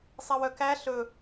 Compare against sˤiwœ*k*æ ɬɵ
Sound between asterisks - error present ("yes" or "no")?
no